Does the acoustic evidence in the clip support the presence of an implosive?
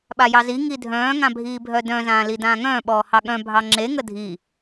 yes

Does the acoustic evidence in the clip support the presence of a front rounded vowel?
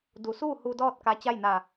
no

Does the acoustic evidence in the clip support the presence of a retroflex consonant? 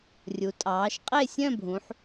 no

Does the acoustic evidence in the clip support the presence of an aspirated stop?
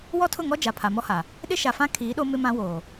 yes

